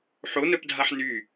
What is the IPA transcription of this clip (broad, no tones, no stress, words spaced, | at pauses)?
ħonœpdʱaħ ny